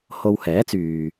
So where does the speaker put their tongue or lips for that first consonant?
throat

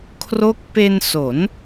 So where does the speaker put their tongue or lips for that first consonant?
velum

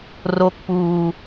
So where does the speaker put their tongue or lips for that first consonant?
tongue tip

